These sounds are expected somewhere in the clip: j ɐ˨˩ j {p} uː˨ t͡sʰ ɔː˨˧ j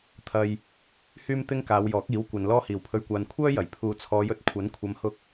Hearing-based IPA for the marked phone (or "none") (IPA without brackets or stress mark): pʰ